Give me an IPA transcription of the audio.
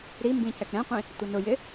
ɾ i m b ĩ c ɛ k ɾ ɛ̃ qʷ ĩ | tʷ ɪ n ʊ j ɪ

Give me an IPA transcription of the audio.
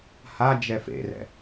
h a d͡ʒ ɛ f ḛ r ɛ̰

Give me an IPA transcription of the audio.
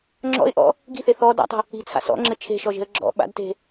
ŋ͡ǁ ɔ̰ ɪ̯ ʔ ɔ̰ | ɡ i̤ θ e θ ɔ d a̰ tˤ ə̤ | i̤ t͡sʰ a̰ s ɔ̰ ŋ͡ǁ ɘ t͡ʃʰ e̤ ʃ ɔ ʒ e̤ ə̯ ɡ͡ǁ ɔ̰ ɓ a̰ d t e̤

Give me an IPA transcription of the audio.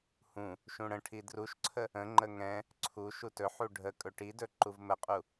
h ũ | ʃ ũ ɽ ə̃ ʈʰ i d r u ʃ ǀʰ ə | ə̃ ŋ͡ǃ ə ŋ ɛ̃ | ǀʰ u ʃ u t ɵ ħ u ɖʱ ə kʼ ɵ ʈ i d ɵ ǃ u v m ə qʼ u

